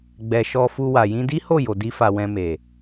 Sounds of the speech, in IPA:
ɡ͡bɛ˨ ʃɔ˧fu˧wa˨ jĩ˧di˦ho˦˨ jo˨di˧fa˨ wɛ̃˧me˨

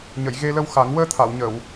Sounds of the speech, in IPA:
ɲə˨˩˨j ɣe˧lə˧w xa˨˩˦ŋ wəː˧t̪ʰa˨˩˨wɲə˨˩˨w

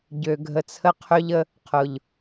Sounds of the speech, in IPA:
ɟø˨ɡʱə˨t͡sʰə˧ qʰø˦ʎə˦ | qʰʊ˨ʎ

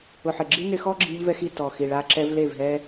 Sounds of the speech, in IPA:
ʊ˨ħɪ˨ɡ͡ǁi˦ nɪ˧xɔ˦ɡ͡ǁi˧ʎvɛ˧x i˦˨tɔ˨xi˨ɭa˧ ǁɛ˧v le˦˨vɦɛ˦

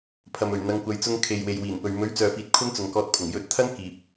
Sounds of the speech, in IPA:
pʰɐ˨mɵ˨˩ɥ n̪ɐ˨˧ŋkʷɐ˨˧j t͡sʊ˧ŋkʰe˨j we˨jwiː˨˩npɵ˨ɥ mɵ˨˥ɥ t͡sœː˨fiː˨t̚ kʷʰɐ˥nt͡sʊ˨ŋkɔː˧t̚pʰʊ˨˩ŋ jɵ˨˥t̚t̪ʰɐ˥n kiː˨p̚

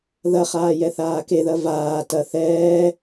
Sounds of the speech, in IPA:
ðɐχaːjɛθaː keðɐ vaː tɐ θɛː

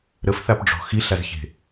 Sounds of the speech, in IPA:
ɾəfθapɖ͡ʐɔ̤ xiɬazçe̤

